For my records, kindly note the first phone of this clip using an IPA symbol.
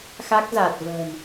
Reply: x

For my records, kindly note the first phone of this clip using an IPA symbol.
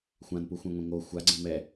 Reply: xʷ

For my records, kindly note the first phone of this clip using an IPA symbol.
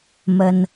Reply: m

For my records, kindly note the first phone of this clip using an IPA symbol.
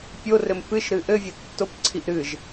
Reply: pʲ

